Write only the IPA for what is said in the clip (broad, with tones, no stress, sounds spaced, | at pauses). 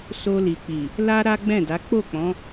s o˧ l i˨ k͡p i˨ | l a˦ ɾ a˦ ɡ͡b ɛ̃˦˨ d a˨˦ k͡p o˦˨ k͡p ɔ̃˨˦